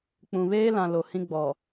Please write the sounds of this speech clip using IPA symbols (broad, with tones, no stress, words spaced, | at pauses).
k͡pũ˨βeː˦lã˨lo˨ hĩ˦ ɡ͡bɔ˨